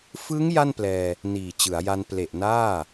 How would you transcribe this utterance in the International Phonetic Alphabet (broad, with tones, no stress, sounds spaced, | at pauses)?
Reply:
f ɯ˦˥ ŋ j a˥˩ n p l ɛː˧ | n iː˨˩ t͡ɕ ɯ˩˦ a̯ j a˧ n p l e˨˩ ʔ n aː˥˩